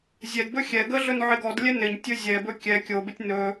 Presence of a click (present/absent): absent